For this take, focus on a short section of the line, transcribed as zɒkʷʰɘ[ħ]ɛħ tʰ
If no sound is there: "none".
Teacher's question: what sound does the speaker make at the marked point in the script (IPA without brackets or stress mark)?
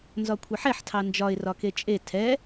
ħ